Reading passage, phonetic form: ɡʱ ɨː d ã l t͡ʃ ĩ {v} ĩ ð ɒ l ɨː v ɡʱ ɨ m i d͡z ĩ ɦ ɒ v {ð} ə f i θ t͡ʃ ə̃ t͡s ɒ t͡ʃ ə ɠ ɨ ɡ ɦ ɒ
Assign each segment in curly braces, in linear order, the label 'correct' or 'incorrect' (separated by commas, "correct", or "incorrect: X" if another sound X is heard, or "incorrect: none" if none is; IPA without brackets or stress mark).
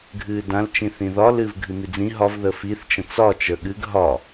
incorrect: θ, correct